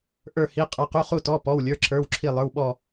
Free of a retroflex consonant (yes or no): yes